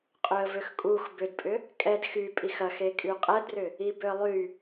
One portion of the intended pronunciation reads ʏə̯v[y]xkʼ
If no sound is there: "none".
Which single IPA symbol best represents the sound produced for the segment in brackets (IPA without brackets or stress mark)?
ʏ